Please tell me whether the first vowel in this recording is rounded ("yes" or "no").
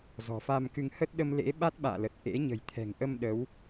yes